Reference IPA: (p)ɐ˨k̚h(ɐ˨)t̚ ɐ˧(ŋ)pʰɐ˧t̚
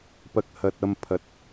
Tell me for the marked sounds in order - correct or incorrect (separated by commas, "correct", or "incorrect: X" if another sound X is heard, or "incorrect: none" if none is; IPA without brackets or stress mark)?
correct, correct, incorrect: m